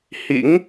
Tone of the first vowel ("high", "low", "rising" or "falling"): rising